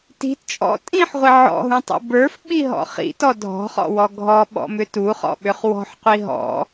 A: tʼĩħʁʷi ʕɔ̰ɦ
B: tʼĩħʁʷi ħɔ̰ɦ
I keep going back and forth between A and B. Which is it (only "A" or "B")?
A